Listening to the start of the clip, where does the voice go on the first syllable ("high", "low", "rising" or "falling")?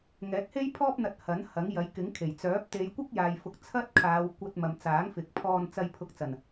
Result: rising